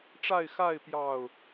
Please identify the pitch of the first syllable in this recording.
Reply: falling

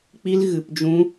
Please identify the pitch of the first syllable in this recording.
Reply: high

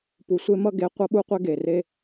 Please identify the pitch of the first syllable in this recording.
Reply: low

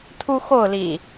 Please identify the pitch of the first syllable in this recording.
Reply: high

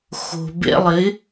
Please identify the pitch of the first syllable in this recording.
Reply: low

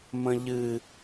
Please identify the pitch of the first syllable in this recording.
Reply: high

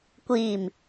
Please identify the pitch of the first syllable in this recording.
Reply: low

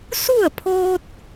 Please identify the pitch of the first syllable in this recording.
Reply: falling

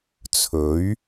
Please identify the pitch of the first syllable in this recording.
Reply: rising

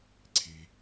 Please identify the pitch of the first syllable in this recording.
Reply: low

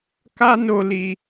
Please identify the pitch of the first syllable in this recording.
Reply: high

